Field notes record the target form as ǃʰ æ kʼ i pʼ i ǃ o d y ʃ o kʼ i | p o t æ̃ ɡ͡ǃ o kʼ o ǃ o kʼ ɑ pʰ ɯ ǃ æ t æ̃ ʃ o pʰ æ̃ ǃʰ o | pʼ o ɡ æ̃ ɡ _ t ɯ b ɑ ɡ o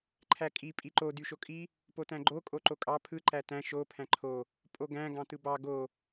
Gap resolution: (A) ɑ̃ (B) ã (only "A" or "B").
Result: A